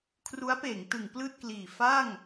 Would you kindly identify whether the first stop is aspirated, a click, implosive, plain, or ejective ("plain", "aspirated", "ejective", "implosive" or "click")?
aspirated